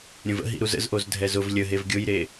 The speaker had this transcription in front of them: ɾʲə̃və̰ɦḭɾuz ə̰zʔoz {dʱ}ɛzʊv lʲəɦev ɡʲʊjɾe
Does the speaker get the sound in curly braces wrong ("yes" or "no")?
no